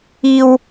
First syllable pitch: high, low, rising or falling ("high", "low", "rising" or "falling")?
high